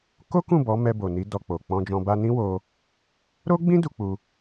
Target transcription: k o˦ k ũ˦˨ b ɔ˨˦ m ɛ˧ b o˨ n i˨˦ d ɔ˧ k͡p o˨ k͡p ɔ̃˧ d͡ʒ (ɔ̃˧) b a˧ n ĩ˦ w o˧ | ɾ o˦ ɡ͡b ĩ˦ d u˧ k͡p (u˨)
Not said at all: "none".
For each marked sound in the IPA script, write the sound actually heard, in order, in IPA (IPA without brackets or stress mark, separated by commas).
ɔ̃˧, u˧